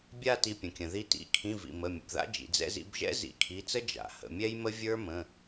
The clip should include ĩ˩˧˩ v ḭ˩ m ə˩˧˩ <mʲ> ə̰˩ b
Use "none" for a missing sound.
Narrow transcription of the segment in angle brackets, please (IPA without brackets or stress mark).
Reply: mʲ